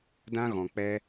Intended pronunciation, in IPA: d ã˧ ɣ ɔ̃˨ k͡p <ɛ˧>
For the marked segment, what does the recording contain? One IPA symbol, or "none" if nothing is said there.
ɛ˧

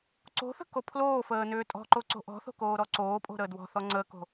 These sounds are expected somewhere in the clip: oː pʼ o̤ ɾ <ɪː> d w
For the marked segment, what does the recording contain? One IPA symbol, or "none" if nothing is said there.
əː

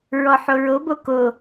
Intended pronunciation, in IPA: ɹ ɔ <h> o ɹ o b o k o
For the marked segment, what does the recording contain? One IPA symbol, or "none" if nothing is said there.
ħ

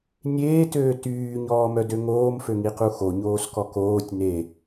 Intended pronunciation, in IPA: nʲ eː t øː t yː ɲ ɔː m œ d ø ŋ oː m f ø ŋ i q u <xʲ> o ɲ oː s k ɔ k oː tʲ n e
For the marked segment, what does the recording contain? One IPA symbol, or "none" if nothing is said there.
x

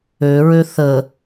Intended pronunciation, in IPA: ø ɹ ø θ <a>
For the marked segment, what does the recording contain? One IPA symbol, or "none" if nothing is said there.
ə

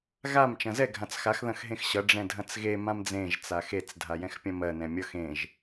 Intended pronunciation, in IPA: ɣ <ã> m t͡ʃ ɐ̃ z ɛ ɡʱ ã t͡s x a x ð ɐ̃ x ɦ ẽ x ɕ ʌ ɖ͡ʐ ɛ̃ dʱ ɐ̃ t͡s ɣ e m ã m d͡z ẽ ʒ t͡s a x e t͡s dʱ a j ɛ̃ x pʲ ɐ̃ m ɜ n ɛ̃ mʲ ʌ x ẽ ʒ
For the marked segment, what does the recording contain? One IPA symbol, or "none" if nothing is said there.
a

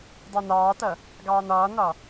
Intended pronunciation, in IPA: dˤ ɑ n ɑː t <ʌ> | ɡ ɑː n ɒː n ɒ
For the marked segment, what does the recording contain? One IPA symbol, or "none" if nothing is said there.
ʌ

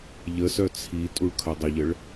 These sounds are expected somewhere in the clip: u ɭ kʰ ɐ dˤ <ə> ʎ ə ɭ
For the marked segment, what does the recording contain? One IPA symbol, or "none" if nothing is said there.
ə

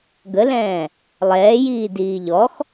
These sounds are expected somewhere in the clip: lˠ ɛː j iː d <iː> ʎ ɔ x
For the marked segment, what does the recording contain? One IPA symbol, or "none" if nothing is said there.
iː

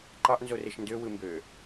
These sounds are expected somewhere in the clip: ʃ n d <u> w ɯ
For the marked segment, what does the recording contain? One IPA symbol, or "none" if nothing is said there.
ø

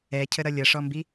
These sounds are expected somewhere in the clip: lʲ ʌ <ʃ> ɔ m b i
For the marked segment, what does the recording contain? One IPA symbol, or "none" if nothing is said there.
ʂ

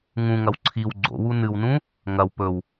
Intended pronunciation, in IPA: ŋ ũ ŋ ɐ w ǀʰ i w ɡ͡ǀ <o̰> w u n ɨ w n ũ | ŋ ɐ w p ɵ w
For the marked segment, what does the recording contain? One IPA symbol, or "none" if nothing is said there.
o̰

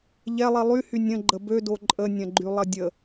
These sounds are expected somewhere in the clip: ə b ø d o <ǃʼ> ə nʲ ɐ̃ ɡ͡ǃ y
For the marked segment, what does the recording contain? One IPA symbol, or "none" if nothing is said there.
ǃʼ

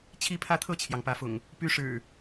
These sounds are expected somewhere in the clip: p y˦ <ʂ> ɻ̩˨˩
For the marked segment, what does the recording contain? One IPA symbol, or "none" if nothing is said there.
ʂ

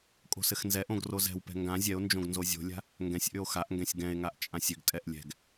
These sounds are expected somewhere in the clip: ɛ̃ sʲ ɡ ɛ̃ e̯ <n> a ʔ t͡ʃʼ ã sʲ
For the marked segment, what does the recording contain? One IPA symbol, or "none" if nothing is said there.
ŋ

